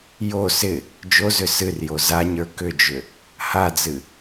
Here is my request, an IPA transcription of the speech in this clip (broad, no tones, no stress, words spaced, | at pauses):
jo sɪ | d͡ʒozʏ sɨrjo zaɲə˞ kʏd͡ʒʏ | had͡zɨ